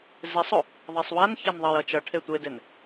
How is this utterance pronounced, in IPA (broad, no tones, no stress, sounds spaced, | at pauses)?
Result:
z e sˤ o | ðˤ e sˤ w a n ç a n ðˤ ʌ j ʌ t͡ʃ ʌ ʈʰ e tʷ e d e n